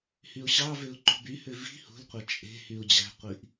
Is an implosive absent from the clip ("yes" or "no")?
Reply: yes